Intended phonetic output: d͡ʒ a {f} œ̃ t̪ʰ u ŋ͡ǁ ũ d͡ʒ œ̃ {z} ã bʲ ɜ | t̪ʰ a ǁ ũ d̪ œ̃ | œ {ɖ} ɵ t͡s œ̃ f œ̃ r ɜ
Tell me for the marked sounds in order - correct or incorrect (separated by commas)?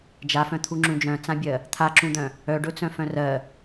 correct, incorrect, correct